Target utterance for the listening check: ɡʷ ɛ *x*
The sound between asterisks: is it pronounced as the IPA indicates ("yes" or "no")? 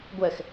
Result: yes